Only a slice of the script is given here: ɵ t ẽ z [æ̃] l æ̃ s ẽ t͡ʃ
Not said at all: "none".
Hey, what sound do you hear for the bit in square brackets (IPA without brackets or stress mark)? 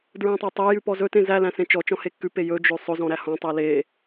æ